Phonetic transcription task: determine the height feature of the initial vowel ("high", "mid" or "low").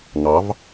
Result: low